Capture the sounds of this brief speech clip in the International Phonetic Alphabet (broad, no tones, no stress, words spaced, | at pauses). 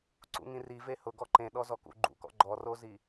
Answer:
ǀṵŋĩri vehʊ ɡɔǃẽ ɗɔzɔkṵ ɡ͡ǃṵkɔ̰ ɡ͡ǃɔrozi